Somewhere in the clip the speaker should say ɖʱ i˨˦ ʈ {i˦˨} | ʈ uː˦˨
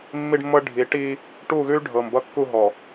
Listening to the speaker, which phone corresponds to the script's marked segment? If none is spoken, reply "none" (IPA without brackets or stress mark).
i˦